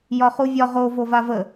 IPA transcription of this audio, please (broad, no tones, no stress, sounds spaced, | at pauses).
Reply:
j ɒ χ u vʲ ɒ ʁ o v o v a v ə